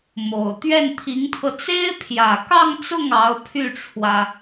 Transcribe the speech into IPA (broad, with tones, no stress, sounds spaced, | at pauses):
m o˨˩ ʊ̯ t̪ ɥ ɛ˥˩ n t̪ʰ i˧˥ ŋ t̪ʰ ɤ˧ t͡s e˥ ɪ̯ pʰ j ä˨˩ k ɑ˥˧ ŋ t͡s ʊ˥˩ ŋ ɑ˧˥ ʊ̯ pʰ y˥˩ ʈ͡ʂʰ w ä˩